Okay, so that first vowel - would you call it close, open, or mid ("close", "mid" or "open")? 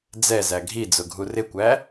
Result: mid